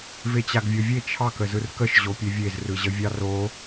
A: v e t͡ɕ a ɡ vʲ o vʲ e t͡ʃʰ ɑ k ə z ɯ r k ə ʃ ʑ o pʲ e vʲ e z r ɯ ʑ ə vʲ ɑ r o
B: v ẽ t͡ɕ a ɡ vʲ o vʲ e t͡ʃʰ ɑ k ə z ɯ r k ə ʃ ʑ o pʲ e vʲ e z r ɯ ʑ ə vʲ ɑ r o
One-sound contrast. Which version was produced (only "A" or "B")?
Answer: A